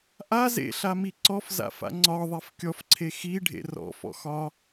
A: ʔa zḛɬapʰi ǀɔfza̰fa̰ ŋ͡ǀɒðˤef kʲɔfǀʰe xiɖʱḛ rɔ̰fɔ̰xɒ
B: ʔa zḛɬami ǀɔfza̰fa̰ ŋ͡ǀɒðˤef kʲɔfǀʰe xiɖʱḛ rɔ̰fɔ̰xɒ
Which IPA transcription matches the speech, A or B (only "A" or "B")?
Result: B